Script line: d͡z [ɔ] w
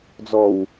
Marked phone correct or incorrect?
correct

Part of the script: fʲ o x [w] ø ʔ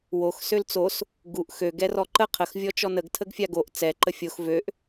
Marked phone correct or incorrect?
incorrect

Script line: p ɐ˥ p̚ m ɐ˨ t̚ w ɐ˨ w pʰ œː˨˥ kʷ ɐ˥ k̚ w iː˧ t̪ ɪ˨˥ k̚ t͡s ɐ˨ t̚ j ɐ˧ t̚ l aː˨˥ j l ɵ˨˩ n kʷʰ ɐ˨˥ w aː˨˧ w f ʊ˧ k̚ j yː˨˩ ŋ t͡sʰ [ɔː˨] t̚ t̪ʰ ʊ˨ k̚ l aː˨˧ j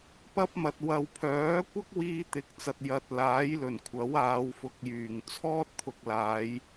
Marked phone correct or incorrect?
incorrect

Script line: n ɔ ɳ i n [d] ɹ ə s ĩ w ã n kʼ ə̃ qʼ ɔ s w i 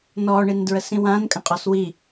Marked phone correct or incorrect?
correct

